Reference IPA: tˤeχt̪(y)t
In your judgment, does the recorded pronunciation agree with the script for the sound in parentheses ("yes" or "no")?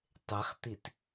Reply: no